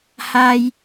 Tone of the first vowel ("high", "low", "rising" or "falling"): high